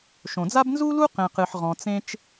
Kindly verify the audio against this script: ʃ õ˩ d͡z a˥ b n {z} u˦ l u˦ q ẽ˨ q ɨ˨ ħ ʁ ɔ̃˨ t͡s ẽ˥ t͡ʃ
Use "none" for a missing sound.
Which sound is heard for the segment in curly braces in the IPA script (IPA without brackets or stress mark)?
z